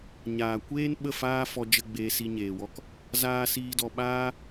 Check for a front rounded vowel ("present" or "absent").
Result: absent